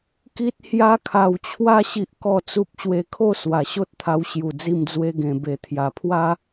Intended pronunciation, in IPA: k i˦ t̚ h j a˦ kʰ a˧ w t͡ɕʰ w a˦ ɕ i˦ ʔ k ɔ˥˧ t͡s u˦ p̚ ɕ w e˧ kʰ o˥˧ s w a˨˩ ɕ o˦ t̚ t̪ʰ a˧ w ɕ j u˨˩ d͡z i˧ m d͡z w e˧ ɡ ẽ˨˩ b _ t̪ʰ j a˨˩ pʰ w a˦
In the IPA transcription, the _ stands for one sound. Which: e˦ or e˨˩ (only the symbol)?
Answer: e˨˩